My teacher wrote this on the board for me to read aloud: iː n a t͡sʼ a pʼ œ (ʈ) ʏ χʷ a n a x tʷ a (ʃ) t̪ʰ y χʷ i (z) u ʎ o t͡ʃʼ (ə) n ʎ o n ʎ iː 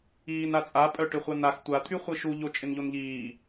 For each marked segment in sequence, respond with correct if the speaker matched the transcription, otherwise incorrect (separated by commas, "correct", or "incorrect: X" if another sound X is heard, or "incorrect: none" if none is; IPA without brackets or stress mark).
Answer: correct, incorrect: none, incorrect: ʃ, incorrect: ɪ